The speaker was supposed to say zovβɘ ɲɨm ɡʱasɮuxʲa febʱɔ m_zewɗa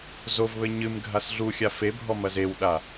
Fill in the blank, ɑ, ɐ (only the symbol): ɐ